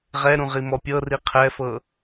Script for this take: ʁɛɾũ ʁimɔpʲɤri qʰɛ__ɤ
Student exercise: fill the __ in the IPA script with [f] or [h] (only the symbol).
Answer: f